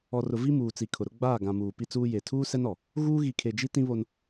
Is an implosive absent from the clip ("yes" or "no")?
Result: yes